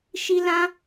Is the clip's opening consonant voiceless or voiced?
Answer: voiceless